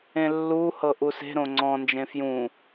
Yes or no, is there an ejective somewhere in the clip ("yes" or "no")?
no